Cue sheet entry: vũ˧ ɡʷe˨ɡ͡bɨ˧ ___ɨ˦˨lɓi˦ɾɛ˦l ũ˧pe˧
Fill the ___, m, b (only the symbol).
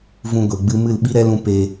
m